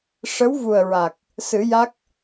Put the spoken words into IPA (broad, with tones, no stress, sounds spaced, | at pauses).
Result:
ʂ ə˧˥ w v u˨˩ ə̯ ɹ a˨˩ k̚ | s ɨ˨˩˦ j a˦˥ k̚